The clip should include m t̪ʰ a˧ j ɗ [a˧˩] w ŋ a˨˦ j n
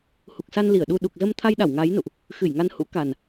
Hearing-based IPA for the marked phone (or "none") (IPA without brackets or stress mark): a˧˩